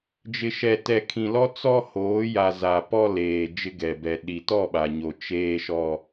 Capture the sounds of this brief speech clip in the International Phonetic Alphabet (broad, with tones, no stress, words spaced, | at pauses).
d͡ʒɪ˨ʃɛ˨tɛ˨ kʰĩ˨lɔ˦ t͡sɔ˦ hoː˨˦ja˨ za˨ pɔ˦ leː˨ d͡ʒɪ˦ɡɛ˨bɛ˨ ɗi˨tɔ˦˨ɓa˨ɲo˨ t͡ʃeː˦ʃɔ˦